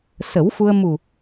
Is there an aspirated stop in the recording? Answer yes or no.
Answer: no